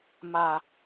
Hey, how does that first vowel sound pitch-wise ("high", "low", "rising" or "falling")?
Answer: low